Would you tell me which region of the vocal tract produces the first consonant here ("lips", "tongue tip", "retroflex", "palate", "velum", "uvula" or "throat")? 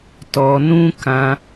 tongue tip